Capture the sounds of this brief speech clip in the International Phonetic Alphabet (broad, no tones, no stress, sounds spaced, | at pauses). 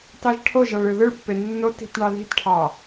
t ɑ ʒ ʈʰ o ʒ ɑ ɭ ɯ ð ɯ ɭ pː e nː o t i̤ t ɳ ɑ ð i̤ t ʈʰ ɑ